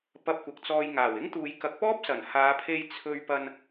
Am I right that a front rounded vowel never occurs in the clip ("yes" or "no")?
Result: yes